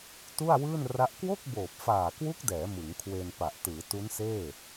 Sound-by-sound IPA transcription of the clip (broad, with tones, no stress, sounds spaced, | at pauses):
t u˥˩ a̯ w ɯː˥˩ n r a˦˥ ʔ k w o˥˩ k̚ b oː˨˩ p̚ f aː˨˩ k w u˦˥ k̚ d ɛː˩˦ m ɯ˩˦ ŋ kʰ w e˧ n p a˨˩ ʔ t ɯː˩˦ t u˦˥ n s eː˥˩